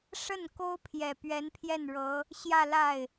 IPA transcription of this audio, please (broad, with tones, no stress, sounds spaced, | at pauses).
ʂ ə˥˩ n k o˥ ʊ̯ pʰ j ɛ˨˩ p ɥ ɛ˧˥ n pʰ j ɛ˥˩ n ɻ ɤ˧˥ | ɕ j ä˥˧ l a˥˩ ɪ̯